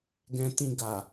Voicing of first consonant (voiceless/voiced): voiced